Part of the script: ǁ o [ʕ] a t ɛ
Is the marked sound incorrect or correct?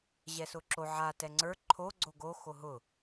correct